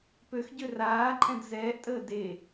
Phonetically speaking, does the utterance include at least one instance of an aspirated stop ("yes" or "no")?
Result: no